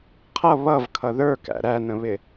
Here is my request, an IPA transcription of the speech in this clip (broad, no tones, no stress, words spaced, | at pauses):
qʰʌ βʌv kʰʌðə˞kæ̰ ɾænə̃βɪ